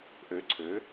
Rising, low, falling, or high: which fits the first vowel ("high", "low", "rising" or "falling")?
rising